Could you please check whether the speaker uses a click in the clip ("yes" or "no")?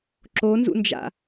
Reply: yes